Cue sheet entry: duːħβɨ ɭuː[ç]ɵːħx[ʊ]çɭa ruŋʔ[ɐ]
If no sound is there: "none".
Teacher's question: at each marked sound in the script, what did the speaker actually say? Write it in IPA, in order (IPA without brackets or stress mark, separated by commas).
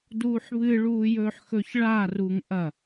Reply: j, ɵ, ɐ